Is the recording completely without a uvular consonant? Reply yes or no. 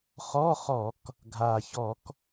no